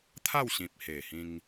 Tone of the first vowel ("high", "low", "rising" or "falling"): falling